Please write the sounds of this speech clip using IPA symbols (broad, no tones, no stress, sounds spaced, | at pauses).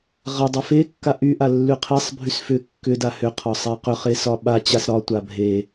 ʁ a dˤ ɛ f e kː a ʔ y ʔ a lː y qʰ ɛ sˤ bʱ y s f ʏ kː ʏ d a h ʏ qʰ ɒ sˤ ɛ q ʏ χ e s ɒ ɓ a t͡ɕ a s ɾ ɒ tʷ a bʱ e